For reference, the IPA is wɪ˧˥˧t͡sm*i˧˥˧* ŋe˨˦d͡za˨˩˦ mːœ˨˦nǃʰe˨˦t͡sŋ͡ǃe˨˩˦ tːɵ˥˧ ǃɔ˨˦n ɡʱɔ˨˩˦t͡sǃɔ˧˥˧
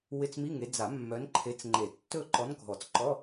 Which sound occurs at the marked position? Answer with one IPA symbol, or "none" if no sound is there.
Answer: i˧˥˧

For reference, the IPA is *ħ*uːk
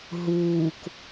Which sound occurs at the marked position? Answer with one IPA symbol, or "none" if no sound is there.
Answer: ɦ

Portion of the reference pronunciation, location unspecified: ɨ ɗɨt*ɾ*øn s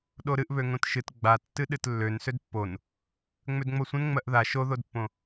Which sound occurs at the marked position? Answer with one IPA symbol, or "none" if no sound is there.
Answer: lː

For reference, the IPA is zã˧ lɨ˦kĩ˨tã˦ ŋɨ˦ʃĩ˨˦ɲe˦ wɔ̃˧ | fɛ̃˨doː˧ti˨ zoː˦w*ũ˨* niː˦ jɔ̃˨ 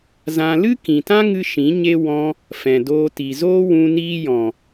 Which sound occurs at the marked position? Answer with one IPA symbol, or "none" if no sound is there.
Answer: ũ˧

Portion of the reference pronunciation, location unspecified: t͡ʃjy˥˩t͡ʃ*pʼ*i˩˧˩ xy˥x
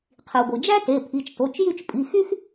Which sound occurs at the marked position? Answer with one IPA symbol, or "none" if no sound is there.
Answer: pʼ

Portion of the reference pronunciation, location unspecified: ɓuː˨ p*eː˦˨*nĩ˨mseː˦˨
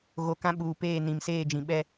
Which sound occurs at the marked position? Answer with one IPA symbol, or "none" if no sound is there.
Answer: eː˦˨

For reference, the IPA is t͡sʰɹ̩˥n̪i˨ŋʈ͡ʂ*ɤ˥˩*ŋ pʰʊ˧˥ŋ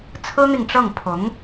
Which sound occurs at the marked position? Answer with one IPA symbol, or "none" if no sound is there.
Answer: ɤ˥˩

